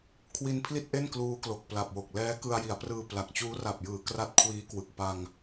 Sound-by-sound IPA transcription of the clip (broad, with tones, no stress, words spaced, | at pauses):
kʰwi˧npʰli˥˩t̚ʔe˥˩n kluː˦˥klo˨˩k̚pla˨˩p̚wo˨˩k̚ lɛː˦˥kɯ˧a̯ji˩˦a̯prɯː˧ pla˨˩k̚t͡ɕuː˦˥ ra˨˩p̚jɯː˩˦ kra˦˥t̚kʰwiː˦˥kwɯ˨˩k̚ pa˧ŋ